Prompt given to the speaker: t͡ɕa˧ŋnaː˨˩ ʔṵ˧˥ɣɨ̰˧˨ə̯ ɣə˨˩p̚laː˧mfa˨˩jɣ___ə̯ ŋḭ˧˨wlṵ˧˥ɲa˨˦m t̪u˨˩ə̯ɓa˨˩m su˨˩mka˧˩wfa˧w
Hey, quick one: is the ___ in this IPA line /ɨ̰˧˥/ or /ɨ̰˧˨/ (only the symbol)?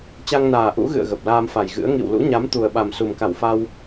ɨ̰˧˥